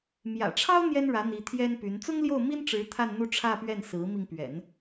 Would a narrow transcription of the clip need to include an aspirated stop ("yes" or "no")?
yes